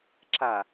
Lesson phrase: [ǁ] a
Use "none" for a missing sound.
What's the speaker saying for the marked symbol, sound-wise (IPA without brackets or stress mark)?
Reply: ǁ